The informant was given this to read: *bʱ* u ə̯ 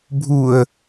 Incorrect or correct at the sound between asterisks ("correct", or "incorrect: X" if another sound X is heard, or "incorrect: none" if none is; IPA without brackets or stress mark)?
correct